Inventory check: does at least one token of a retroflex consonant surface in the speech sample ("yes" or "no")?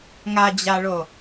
yes